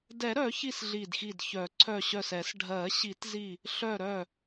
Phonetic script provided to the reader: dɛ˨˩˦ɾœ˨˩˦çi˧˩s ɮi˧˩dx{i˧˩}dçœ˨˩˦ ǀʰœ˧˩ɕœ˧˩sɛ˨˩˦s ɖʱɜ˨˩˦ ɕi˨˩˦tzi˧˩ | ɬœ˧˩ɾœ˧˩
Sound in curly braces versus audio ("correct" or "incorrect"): correct